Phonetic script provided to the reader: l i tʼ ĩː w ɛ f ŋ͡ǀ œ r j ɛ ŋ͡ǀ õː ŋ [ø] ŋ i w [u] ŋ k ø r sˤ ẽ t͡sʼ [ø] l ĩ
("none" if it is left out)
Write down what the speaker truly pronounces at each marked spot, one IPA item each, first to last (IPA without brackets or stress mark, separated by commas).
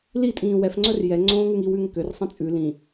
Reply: ʉ, ʉ, ʉ